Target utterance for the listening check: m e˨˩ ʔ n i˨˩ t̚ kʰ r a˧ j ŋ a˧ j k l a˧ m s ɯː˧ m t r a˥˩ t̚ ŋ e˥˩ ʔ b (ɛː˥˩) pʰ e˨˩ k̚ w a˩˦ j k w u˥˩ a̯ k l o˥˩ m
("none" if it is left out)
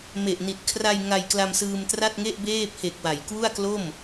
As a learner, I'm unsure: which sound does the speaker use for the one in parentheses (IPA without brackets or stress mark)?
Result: eː˥˩